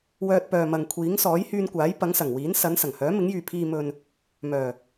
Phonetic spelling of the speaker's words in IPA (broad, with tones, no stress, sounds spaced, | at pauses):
w œː˧ t̚ p œː˨ m ɐ˨ ŋ kʷʰ iː˨˥ ŋ s ɔː˨˥ j h yː˧ n kʷ aː˨˥ j p ɐ˨˥ ŋ s ɐ˨˩ ŋ w iː˨˥ n s ɐ˨˥ n s ɐ˨˩ ŋ h œː˨˥ m ɪ˨˥ ŋ j yː˨ pʰ iː˨ m ɵ˨ n | m œː˨˩